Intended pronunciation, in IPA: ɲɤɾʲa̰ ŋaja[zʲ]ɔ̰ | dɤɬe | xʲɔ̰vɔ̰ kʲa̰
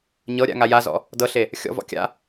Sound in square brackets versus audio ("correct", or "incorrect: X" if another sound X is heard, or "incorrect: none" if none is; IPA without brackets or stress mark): incorrect: z